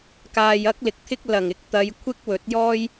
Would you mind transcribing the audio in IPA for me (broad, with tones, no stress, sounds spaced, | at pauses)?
k aː˨ j ɐ˥ k̚ l ɪ˨ k̚ t̪ʰ ɪ˥ k̚ l ɐ˨˩ ŋ ɪ˧ k̚ t̪ ɐ˨˧ j kʷʰ ɪ˥ k̚ w ɵ˨˥ t̚ j ɔː˥ j